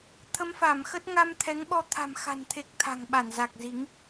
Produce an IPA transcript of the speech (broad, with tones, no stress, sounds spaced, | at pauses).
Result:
t̪ʰ ə˨˦ m f a˧˩ m x ə˦˥ t̚ ŋ a˧ m t̪ʰ ɛ˨˦ ŋ ɓ ɔ˧ t̪ʰ a̤˨˩ m x a̤˨˩ n t̪ʰ e˨˩ k̚ t̪ʰ a̤˨˩ ŋ ɓ a˧˩ n z a˨˩ k̚ z i˨˦ ŋ